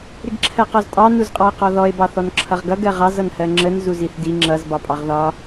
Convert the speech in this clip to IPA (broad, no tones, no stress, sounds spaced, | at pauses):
ɾ ɪ ɡ ǁʰ ɜ q ɔ z tʼ ɑ n u z qʼ ɑ e̯ q ɔ ð ɔ e̯ b ɑ θ ɔ n ǁʰ ʌ ʁ ɡ ʌ ɡ ɜ ʁ ɑ z ʌ n h ɜ ŋ͡ǁ ə n z u z i θ d i ŋ͡ǁ ʌ z b ɑ pʼ ɑ ʁ ð ɒ